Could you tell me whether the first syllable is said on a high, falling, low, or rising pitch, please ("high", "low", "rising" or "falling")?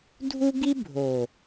high